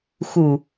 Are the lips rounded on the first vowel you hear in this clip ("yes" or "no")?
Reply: yes